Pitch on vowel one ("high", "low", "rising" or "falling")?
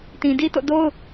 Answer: low